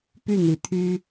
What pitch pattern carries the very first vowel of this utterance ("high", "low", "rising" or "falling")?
falling